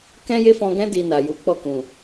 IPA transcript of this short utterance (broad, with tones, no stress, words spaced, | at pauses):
kɛ̃˦je˦fɔ̃˧ɡɛ̃˦ di˧na˨ju˨˦ k͡pɔ˦˨kũ˨